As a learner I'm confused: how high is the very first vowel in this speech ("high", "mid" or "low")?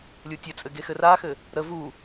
high